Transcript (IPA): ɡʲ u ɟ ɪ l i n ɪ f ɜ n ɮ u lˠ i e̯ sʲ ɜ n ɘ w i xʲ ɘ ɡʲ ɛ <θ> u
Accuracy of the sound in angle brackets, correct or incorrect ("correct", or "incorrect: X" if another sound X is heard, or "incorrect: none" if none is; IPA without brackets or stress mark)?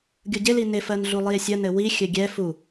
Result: incorrect: f